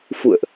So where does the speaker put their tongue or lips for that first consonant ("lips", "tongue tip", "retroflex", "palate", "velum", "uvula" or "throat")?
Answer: lips